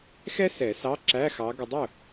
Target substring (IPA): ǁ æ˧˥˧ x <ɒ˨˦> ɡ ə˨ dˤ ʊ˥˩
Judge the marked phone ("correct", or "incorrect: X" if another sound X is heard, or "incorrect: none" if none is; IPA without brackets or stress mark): incorrect: ɑ˨˦